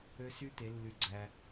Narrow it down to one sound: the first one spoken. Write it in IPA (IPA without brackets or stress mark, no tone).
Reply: ø